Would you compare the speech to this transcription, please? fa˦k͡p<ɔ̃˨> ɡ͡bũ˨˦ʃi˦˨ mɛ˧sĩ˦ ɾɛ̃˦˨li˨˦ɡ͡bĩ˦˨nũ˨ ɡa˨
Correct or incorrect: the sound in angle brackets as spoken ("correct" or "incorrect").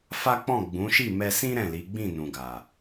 incorrect